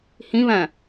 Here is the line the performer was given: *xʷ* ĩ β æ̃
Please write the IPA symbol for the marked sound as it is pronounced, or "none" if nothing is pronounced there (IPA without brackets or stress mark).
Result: h